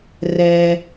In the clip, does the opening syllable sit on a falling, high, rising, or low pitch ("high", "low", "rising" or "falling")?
low